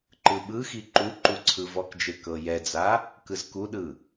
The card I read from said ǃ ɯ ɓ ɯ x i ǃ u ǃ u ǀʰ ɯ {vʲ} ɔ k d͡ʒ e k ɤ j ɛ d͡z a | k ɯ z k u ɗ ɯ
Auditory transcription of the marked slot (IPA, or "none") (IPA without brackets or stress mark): v